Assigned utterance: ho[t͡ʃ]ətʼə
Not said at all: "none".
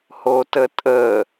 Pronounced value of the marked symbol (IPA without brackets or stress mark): t